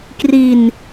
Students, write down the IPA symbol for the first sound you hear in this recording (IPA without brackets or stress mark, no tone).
k